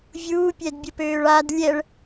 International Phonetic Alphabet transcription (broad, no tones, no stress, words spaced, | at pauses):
vʲuːpʲɛdbʲəpøːɭ ad lʲɛɭ